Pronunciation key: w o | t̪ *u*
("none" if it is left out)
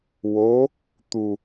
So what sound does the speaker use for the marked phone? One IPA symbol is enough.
u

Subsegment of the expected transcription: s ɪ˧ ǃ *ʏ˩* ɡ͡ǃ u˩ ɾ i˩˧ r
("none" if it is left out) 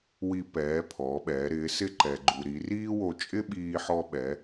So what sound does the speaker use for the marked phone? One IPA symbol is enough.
ɛ˩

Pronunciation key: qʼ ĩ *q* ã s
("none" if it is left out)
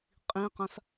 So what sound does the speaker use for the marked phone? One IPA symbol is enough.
q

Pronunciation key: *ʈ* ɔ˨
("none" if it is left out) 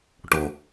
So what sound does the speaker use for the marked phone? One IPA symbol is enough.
ʈ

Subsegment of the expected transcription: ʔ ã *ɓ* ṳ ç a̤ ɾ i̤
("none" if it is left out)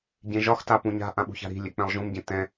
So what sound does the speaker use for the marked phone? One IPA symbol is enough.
ɓ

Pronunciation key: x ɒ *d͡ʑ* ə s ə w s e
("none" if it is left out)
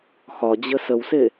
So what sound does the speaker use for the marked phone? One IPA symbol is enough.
d͡ʑ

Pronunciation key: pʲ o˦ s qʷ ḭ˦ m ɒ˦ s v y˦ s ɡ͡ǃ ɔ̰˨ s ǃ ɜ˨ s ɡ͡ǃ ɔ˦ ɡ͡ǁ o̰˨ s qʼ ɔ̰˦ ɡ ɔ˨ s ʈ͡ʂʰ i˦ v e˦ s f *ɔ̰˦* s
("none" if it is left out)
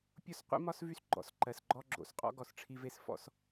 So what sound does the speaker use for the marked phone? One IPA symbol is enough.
ɔ̰˦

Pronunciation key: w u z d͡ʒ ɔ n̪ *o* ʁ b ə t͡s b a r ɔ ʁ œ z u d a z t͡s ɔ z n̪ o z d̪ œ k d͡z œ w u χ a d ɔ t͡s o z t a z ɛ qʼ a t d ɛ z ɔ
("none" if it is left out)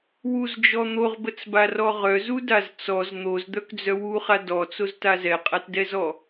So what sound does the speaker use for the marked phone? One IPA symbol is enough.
o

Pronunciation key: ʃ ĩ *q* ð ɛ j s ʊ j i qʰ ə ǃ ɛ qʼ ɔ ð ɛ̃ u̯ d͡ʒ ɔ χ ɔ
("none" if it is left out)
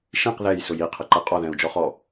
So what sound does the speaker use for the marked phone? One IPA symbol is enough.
q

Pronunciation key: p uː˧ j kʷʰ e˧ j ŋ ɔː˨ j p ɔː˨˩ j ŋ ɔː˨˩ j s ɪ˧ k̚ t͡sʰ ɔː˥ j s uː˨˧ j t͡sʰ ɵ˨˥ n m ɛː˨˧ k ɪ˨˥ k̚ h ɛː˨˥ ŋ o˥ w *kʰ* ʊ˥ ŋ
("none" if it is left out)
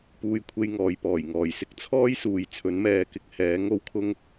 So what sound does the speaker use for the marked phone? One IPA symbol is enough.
kʰ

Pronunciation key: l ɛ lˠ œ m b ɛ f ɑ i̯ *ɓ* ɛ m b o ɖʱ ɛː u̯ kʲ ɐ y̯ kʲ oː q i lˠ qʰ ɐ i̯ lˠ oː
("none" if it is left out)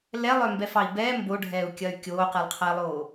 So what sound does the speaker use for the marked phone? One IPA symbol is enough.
b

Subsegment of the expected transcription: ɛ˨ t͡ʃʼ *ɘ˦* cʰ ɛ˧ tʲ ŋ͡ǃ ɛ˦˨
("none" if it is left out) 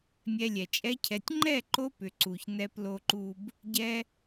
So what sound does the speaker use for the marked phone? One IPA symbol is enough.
ɛ˦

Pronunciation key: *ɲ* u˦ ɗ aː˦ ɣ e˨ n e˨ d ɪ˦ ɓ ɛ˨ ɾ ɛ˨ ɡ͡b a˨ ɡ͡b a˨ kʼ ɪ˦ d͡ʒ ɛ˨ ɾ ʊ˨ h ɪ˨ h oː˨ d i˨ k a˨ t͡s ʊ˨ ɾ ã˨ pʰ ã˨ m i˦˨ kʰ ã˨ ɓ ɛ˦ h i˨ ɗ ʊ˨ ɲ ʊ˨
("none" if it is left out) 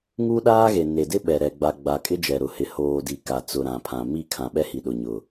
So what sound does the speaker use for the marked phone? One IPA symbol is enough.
ŋ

